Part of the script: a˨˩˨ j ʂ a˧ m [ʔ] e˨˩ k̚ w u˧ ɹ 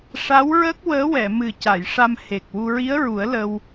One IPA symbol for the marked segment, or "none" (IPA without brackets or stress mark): h